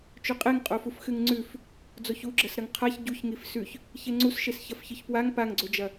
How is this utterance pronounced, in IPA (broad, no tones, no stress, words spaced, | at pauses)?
t͡ʃɵqʼeŋqʼofuf xɨŋŋ͡ǀʉf | d͡zoçuɡ͡ǁɐsɾɐŋ qʰaç ɟuçŋif sʉç | çeŋ͡ǀusʃes çɐfçɨçpwaŋ paŋɡ͡ǀod͡ʒɐ